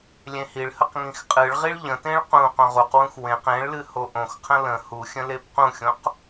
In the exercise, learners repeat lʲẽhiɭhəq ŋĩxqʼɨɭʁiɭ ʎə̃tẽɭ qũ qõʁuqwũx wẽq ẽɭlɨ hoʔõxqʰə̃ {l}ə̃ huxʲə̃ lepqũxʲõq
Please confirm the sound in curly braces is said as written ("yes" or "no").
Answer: yes